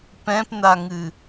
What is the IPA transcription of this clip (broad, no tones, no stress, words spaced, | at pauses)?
pɛ̃pnaŋɨ